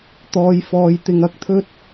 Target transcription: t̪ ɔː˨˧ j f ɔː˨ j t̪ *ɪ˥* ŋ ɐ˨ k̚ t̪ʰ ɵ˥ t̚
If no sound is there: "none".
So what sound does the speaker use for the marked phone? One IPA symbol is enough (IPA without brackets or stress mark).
ɪ˨